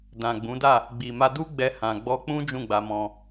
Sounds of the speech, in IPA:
d ã˨ ɡ͡b ũ˨˦ d a˦˨ | ɡ͡b i˨ m a˧ d u˦ ɡ͡b ɛ˧ h ã˨ ɡ͡b ɔ˧ k͡p ũ˦ d͡ʒ ũ˦˨ ɡ͡b a˧ m ɔ̃˧

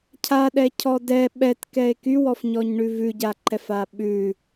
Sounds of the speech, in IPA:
cʰ a ɗ ɛ cʰ ɔ d ɛ ɓ ɛ t k ɛ e̯ k y w ɔ f ɲ ɔ ɲ ɳ ʉ v ʉ ɟ a ǃ ɛ f a ɓ ʉ

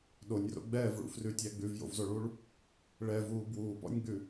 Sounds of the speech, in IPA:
ɗ o nʲ r o̰ ɡ͡b ɛː v ɭ ṵ f r ʉ tʲ æ ɡ͡b ʉ v j o̰ v z o ɭ uː ɭ | ɭ ɛ v uː b w uː p ɔ̰ nʲ ɡ͡b ʉ

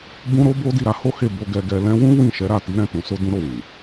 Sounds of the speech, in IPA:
b ũ˦ ɾ o˦ b o˦ d i˦˨ ɾ a˨˦ h o˦ h e˦˨ b o˧ ɡ ɛ˧ ɡ ɛ˧ l ɛ̃˧ w ũ˦ w ĩ˦˨ ʃ ɛ˨˦ ɾ a˦˨ t i˨˦ ɾ ɛ̃˦˨ t ũ˨˦ s o˦ d ũ˦ ɾ o˦˨ w ĩ˨

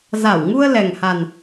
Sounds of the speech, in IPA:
z a˧˩ w ŋ u˧ ə̯ l ɛ˨˩ ŋ h a˨˩ n

